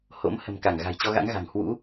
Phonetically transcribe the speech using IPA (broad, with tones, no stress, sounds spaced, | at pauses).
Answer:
h o̰˧˥ m h ə̤˨˩ m k a˧˩ ŋ ɣ a̤˨˩ j t͡ɕ ɔ˧ ɣ a̰˧˥ ŋ ɣ a̤˨˩ ŋ h w ṵ˧˥